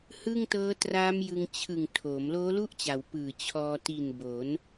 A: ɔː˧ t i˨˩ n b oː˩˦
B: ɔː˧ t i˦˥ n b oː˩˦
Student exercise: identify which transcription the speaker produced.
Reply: A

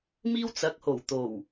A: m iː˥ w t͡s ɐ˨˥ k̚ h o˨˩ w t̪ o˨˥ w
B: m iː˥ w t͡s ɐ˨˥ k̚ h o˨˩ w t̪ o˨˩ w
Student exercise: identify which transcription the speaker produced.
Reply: B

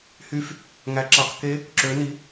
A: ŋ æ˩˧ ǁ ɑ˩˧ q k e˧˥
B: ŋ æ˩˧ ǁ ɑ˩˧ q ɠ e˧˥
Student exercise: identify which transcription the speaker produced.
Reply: A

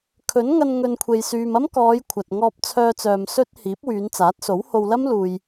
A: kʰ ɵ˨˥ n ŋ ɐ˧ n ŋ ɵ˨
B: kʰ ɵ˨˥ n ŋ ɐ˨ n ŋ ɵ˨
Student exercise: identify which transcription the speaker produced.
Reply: A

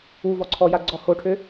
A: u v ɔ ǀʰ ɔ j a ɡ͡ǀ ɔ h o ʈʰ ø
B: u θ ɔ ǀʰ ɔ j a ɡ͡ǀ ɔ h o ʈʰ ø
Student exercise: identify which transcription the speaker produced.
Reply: A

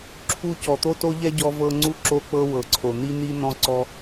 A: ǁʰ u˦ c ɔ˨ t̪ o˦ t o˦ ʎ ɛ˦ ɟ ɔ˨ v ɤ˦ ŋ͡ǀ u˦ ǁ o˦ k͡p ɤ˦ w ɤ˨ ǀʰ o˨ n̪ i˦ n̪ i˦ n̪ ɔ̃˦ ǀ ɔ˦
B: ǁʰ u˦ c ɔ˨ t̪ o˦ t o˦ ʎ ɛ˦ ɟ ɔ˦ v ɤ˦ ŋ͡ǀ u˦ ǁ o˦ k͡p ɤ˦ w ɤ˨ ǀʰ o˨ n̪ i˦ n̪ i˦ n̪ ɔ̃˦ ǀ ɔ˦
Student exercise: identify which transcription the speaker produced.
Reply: B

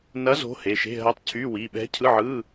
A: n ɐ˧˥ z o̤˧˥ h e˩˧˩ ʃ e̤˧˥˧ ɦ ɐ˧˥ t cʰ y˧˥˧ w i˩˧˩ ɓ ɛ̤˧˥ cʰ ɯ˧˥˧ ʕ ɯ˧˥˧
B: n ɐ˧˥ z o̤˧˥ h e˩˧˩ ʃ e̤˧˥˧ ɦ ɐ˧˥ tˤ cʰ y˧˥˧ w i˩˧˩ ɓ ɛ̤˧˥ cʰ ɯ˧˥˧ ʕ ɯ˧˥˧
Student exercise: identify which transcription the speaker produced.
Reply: B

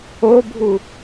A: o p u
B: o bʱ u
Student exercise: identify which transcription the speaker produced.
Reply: B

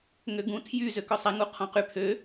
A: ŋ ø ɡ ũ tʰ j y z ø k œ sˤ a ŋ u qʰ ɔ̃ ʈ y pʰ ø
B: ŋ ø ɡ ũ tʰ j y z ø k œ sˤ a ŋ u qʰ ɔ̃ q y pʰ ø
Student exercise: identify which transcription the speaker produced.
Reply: B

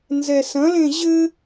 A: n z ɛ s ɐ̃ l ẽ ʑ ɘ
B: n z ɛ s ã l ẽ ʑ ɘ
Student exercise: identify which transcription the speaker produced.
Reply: A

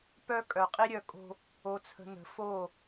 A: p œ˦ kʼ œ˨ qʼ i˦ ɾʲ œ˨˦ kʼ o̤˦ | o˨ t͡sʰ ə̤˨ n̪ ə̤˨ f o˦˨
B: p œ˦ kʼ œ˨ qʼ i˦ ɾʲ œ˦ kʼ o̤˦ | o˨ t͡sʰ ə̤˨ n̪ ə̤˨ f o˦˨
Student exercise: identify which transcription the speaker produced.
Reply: A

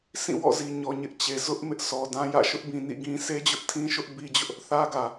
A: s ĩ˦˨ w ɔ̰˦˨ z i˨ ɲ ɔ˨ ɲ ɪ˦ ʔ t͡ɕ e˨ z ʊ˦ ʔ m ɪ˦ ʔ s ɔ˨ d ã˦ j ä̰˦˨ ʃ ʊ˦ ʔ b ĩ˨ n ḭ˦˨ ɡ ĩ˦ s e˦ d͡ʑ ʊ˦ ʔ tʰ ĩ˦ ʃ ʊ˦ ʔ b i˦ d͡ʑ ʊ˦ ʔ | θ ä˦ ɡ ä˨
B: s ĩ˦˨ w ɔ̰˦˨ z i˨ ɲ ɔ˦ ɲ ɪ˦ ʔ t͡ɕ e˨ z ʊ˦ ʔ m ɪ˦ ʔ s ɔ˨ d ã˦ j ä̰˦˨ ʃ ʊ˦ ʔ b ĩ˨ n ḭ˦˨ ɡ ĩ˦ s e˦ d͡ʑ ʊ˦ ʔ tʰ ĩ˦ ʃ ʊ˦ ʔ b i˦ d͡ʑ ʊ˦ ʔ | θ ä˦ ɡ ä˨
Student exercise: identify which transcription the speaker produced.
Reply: A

